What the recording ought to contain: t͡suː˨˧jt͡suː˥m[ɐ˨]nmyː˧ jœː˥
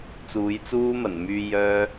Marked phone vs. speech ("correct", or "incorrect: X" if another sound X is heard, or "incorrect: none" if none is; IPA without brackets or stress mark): incorrect: ɐ˨˩